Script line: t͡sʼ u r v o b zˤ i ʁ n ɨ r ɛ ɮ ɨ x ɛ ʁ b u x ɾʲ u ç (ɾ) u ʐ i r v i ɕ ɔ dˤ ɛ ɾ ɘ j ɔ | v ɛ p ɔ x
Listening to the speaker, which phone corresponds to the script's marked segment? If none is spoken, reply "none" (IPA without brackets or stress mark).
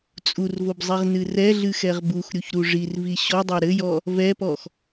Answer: ɾ